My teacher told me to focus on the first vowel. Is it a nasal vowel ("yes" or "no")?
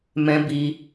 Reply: yes